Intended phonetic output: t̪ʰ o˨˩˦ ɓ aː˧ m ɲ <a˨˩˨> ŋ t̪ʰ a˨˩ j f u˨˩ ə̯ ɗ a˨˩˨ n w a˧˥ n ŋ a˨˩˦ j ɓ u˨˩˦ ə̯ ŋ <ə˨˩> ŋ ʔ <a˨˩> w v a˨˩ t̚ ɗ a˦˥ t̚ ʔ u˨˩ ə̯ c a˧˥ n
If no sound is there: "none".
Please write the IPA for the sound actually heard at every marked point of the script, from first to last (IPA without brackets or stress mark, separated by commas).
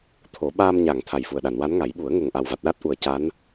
a˨˩˨, ə˨˩, a˨˩